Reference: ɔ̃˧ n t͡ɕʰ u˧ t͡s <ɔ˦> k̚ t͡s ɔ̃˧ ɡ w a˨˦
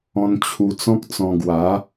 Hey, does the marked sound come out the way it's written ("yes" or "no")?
no